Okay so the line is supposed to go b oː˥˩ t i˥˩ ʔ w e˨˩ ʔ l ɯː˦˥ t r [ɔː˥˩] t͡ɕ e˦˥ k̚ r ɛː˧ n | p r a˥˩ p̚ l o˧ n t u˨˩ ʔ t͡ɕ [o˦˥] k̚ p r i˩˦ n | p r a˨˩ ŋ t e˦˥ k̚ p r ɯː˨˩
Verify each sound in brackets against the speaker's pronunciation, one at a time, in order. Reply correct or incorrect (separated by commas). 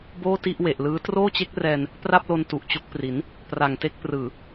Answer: incorrect, correct